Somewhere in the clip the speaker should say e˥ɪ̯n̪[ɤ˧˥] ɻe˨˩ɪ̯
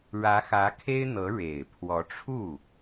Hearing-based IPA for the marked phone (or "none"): ɤ˧˥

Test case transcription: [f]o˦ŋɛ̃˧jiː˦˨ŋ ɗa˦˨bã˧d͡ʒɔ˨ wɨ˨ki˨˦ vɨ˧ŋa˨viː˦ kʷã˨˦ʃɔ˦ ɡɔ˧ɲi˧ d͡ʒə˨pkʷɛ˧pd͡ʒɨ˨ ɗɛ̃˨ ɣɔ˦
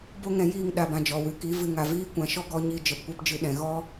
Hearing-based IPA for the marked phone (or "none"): b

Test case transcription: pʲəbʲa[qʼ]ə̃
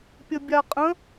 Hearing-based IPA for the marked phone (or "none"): qʼ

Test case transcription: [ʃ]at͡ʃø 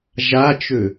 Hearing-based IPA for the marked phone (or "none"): ʒ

